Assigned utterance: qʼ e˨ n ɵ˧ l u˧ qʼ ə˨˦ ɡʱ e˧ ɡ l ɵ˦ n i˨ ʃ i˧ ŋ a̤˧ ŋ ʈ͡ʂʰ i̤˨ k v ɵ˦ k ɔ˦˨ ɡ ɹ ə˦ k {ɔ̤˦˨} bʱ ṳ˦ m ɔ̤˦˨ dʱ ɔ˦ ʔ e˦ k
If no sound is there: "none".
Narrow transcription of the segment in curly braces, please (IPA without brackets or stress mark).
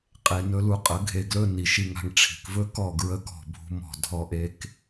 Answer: ɔ̤˦˨